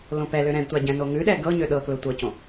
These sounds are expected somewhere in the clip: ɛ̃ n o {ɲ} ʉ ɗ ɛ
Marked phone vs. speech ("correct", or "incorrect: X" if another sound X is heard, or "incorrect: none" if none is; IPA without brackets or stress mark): incorrect: ŋ